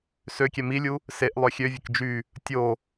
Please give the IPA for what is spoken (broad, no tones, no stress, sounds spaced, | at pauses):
s ø kʲ ɛ m i lʲ u | s e ʔ lˠ œ xʲ ø vʲ ə k d͡ʒ y | tʲ o